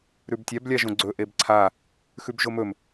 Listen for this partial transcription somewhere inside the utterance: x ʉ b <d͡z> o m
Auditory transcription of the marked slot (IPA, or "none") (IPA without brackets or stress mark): ʒ